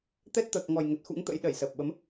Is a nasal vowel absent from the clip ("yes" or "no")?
yes